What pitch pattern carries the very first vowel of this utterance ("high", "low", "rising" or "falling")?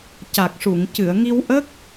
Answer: low